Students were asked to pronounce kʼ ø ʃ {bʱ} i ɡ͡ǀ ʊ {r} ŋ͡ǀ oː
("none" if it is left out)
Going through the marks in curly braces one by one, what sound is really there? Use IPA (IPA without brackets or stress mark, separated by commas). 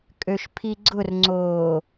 pʰ, r